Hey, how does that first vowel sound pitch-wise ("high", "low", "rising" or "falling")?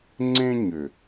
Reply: high